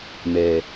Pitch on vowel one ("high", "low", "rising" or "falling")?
low